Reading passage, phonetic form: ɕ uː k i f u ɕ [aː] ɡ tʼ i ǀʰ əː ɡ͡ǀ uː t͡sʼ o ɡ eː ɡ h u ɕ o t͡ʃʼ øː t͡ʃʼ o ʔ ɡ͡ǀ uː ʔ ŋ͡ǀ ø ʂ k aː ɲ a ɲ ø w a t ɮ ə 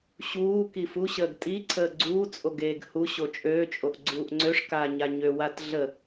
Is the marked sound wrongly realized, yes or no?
yes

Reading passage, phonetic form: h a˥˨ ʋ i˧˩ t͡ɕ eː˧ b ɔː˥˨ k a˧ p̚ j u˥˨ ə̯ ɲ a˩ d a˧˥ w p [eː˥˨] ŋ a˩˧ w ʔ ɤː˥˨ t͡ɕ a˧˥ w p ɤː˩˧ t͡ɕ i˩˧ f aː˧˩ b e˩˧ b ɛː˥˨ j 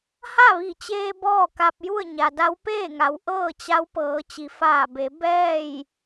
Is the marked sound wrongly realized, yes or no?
no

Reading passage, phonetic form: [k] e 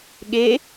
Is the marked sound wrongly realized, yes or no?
yes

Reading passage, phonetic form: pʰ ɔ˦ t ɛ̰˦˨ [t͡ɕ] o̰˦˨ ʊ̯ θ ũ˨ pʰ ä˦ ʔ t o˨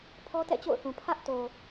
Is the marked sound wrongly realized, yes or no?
no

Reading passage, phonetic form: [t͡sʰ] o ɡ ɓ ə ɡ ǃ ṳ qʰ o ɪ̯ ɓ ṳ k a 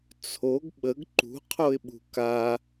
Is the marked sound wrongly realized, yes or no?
no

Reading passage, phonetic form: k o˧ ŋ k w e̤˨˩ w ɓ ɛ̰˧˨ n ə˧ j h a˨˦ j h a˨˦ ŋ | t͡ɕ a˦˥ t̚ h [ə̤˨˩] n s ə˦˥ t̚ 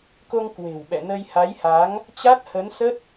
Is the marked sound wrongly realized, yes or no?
yes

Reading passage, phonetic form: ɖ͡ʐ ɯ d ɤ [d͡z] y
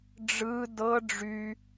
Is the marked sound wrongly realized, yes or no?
yes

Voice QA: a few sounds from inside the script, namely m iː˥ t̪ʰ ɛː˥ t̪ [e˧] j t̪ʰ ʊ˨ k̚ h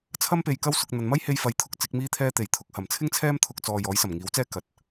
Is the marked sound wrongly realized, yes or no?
yes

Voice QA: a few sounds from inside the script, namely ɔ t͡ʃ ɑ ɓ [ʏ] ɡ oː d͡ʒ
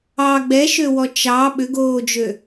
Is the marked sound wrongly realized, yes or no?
no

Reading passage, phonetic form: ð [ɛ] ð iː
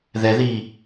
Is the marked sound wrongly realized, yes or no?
no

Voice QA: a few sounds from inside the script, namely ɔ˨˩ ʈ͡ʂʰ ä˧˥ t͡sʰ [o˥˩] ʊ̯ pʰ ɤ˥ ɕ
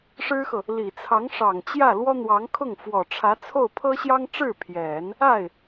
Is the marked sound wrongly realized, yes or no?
no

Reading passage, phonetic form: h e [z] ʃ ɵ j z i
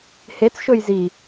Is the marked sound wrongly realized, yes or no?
yes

